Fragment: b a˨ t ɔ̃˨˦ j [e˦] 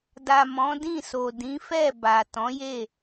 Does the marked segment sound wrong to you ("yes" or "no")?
yes